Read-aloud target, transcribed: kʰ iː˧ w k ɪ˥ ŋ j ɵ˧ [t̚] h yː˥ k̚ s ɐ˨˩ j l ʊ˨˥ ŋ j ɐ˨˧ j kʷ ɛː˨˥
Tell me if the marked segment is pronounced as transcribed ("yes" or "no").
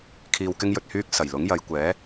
yes